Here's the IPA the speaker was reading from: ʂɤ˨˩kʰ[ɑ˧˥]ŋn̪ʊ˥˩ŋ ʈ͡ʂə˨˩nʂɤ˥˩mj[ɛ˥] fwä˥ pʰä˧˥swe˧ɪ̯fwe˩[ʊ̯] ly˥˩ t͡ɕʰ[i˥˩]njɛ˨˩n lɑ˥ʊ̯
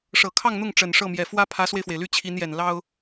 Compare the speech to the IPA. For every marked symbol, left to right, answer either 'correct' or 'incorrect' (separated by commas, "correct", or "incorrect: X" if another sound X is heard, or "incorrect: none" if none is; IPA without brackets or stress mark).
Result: incorrect: ɑ˥˧, incorrect: ɛ˨˩, incorrect: ɪ̯, incorrect: i˧˥